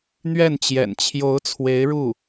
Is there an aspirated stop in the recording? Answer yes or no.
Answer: yes